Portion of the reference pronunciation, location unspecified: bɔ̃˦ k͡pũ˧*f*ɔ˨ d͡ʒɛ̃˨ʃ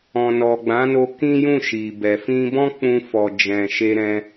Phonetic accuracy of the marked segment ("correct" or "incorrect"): correct